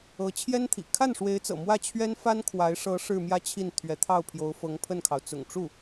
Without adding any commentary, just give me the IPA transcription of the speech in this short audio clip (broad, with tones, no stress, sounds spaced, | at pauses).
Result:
ɤ˧˥ t͡ɕʰ j ɛ˥ n t̪ʰ ḭ˨˩ kʰ a˥˩ n ʂ w e˧˥ ɪ̯ t͡s ɤ̰˨˩ m w ä˥˩ t͡ɕʰ ɥ ɛ˥ n f a˥ n kʰ w a˧˥ ɪ̯ ʂ ɤ˧˥ ʂ ɻ̩˥˧ m j ä˥˧ t͡ɕʰ i˥˩ n t̪ʰ ɥ ɛ˧˥ t̪ʰ ɑ˥˩ ʊ̯ pʰ j o˧˥ ʊ̯ f ɤ˧˥ ŋ pʰ ə˥˩ n kʰ ɑ˩ ʊ̯ t͡s ʊ̰˨˩ ŋ ʈ͡ʂ u˥˩